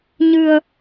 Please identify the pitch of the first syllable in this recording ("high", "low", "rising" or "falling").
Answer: low